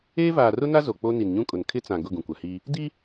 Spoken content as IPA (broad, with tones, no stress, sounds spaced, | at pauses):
eː˦ v aː˨ r ʊ˦ n a˦ z o˨ k͡p o˦ n i˨ n ɲ ũ˦ kʼ ʊ˨ n kʰ ɪ˦ t͡s ã˨ ɡ ʊ˦˨ ɡ ũ˨ kʷ a˨ h iː˦ | d i˦